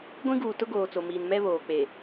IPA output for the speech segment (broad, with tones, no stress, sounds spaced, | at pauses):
ɡʷ ĩ˦ ɡ uː˨ t ʊ˦ ɡ oː˨ t͡s o˨ m iː˨ n m ɛ˦ β oː˨ k͡p e˨